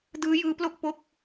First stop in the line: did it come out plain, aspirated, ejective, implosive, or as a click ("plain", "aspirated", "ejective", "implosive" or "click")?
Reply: plain